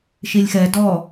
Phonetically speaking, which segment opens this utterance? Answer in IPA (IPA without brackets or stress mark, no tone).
ʃ